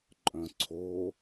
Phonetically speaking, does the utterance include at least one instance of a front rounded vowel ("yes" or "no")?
yes